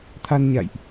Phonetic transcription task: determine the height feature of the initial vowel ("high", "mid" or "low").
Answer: low